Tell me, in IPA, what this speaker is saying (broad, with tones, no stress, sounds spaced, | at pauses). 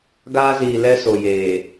ɡ aː˦ z iː˨ l ɛ˦ s o˨ j eː˨